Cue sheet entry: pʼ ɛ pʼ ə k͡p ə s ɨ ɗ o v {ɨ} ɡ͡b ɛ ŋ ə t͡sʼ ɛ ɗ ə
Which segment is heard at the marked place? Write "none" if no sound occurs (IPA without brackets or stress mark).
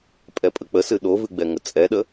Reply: ɨ